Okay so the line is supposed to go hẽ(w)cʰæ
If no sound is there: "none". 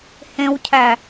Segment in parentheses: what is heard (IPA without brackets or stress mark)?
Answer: w